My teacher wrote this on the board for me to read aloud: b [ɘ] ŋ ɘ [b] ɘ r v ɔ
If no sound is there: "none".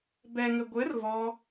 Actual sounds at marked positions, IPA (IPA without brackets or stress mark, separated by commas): ɛ, ɡʷ